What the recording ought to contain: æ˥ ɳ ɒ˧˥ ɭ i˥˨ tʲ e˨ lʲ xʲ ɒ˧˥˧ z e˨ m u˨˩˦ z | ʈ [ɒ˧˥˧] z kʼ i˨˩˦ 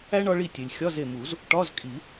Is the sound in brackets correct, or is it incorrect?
correct